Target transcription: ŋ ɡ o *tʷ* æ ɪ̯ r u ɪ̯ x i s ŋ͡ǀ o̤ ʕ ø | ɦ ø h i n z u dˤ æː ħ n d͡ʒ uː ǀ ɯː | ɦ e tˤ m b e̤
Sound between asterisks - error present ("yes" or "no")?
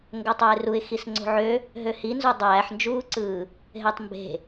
yes